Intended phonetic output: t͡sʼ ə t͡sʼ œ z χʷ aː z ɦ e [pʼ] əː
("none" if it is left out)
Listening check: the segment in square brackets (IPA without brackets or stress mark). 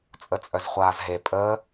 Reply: pʼ